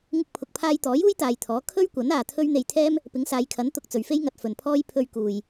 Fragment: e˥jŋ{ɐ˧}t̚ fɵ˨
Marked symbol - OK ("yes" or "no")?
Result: yes